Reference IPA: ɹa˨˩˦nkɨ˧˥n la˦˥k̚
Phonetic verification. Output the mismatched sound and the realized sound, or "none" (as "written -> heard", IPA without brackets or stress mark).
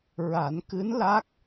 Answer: none